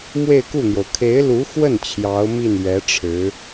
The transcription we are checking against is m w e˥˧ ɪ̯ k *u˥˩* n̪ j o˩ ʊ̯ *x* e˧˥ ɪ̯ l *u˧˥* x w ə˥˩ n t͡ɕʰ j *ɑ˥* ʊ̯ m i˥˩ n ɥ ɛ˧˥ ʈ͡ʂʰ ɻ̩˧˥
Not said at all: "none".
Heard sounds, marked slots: u˥˩, kʰ, u˧˥, ɑ˧˥

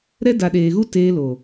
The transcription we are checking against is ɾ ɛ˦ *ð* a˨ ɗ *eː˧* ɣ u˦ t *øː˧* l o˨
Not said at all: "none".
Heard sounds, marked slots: d, eː˨, eː˧

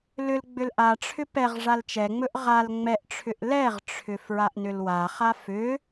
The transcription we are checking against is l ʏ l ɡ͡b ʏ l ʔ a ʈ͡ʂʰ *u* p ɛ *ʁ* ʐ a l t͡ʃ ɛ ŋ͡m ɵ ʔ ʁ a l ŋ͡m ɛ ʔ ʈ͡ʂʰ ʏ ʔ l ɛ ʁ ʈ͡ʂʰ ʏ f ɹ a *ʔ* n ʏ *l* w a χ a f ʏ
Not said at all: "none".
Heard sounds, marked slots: ʏ, ʁ, ʔ, l

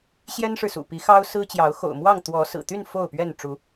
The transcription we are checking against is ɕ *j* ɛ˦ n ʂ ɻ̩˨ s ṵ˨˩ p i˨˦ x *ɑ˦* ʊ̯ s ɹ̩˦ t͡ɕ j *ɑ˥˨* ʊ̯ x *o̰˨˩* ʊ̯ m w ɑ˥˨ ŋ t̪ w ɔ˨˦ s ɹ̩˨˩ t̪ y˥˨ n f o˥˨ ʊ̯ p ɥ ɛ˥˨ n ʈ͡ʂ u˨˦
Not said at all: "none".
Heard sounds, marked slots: j, ɑ˦, ɑ˨˦, o̰˨˩

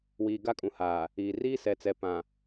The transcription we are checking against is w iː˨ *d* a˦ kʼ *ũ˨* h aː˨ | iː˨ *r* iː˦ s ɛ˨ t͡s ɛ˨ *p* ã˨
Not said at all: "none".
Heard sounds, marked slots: ɡ, ũ˨, r, p

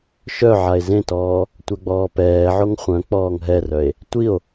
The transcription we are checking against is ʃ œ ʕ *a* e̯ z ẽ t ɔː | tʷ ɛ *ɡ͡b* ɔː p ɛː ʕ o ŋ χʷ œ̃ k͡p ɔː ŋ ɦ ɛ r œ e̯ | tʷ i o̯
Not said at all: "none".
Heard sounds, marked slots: a, ɡ͡b

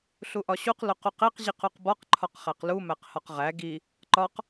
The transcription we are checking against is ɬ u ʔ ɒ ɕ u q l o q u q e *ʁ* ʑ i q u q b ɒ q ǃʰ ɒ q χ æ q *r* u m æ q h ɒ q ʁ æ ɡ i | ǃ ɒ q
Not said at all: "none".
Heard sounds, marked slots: q, l

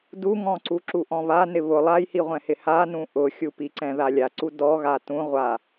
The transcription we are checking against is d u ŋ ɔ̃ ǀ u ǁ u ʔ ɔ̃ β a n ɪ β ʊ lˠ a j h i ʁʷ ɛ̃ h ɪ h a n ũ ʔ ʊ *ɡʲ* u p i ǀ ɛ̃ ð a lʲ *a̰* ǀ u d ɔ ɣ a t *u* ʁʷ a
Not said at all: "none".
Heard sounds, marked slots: xʲ, a, ũ

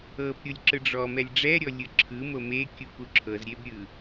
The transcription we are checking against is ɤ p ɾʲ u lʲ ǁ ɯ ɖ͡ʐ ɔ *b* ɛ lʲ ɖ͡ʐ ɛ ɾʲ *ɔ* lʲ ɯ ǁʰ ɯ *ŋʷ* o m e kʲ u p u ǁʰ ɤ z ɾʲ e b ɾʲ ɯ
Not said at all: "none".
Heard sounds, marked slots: m, ɔ, m

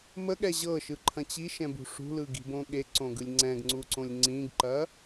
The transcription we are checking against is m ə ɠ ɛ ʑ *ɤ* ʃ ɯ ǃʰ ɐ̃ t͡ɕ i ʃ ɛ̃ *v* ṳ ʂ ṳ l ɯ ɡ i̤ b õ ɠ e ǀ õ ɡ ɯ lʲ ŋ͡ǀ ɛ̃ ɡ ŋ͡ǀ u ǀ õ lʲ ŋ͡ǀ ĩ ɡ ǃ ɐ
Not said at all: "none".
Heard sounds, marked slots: ɤ, b

